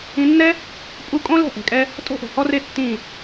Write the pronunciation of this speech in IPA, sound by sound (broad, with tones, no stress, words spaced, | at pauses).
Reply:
ĩ˧nːɛ˦ | pʼu˦ kʼõ˦lɛ̤˦˨ʔɛ̤˨kʼɛ˧ | tʼo̤˦ʔo̤˨hɔ˦re˦ tːĩ˦˨